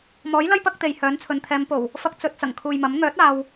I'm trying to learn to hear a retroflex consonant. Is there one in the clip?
no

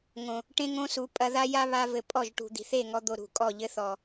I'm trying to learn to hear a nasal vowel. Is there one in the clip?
yes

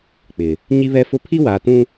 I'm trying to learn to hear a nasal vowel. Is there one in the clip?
yes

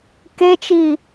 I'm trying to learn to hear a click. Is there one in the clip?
no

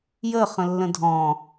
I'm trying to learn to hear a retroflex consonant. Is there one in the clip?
no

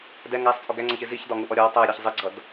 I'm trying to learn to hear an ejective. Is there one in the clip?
yes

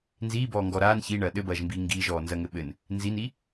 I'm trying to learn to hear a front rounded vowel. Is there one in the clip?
no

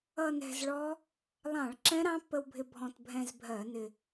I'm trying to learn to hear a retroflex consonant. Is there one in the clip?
yes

